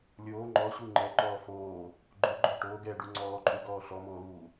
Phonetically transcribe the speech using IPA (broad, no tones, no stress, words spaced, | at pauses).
lʲoː ŋ͡ǃɔɕu ŋ͡ǃɛǃɔː foː | ɡ͡ǃoɡ͡ǃɔ ʈoːɡɛːɖu ŋ͡ǀɔːǃʼuɡɔː ɬɔmoːluː